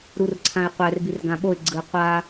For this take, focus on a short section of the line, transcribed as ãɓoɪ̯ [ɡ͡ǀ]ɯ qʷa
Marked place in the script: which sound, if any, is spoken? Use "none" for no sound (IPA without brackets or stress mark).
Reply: ɡ͡ǀ